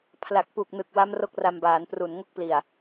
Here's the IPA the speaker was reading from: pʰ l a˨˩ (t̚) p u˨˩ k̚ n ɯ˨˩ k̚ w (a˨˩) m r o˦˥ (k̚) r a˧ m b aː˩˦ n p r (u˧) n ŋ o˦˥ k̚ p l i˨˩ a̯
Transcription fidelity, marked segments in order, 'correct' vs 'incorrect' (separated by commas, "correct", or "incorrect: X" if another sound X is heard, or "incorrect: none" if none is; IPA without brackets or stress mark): incorrect: k̚, incorrect: a˦˥, correct, incorrect: u˨˩